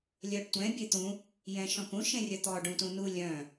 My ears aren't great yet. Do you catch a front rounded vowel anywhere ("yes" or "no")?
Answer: yes